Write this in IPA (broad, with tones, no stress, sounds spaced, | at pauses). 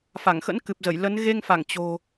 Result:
f a˧˩ ŋ x ə̰˧˥ n k ɨ˨˩ p̚ z ə˧˩ j l ə˨˦ n ɣ e˧ ŋ f a˧˩ ŋ t͡ɕ o̤˨˩